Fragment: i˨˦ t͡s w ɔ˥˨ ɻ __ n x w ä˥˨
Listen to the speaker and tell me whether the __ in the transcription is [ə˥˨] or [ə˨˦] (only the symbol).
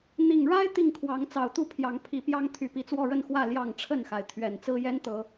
ə˥˨